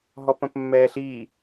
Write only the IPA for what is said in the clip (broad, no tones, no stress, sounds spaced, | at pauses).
ɦ ɔ p ə̃ p mː ɛː ɬ i